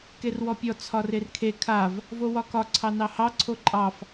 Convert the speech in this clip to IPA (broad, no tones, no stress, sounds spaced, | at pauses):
k e r w ɔ pʲ ɔ t͡sʰ ɒ r e r kʰ e kʰ a v | v o w ɒ k ɒ ǀʰ ɑ n ɑ h ɑ ǀʰ o ǃʼ ɑ f